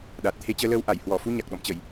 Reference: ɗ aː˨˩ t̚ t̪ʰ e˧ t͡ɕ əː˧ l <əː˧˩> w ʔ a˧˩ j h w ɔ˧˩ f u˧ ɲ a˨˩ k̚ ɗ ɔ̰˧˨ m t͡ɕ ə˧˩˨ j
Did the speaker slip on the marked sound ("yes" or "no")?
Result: yes